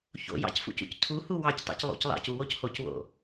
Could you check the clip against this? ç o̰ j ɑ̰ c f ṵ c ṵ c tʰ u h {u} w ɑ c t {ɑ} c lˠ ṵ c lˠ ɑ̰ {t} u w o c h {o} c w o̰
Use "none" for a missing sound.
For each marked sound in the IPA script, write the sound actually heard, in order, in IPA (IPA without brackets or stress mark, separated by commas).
u, ɑ̰, c, o